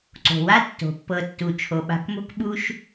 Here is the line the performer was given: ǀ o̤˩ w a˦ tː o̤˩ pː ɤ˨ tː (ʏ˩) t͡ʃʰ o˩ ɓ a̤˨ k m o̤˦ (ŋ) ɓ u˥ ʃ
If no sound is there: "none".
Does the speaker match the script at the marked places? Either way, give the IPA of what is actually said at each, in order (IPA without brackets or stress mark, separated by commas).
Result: u˩, k